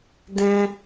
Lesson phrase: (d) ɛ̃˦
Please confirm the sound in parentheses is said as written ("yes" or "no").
yes